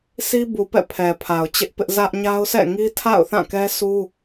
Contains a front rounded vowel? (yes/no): no